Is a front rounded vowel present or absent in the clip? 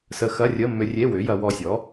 present